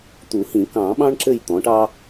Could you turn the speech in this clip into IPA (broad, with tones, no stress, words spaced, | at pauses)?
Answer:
t̪u˨˩˦hĩ˨˩˦ kɑ̃˨˩˦ ɓɑ̃˥ɳǁɘ˦˨j t̪ɔ̃˩˥ʈɑ˥